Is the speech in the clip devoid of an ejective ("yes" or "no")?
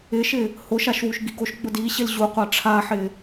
yes